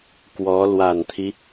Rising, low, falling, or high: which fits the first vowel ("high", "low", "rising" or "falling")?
rising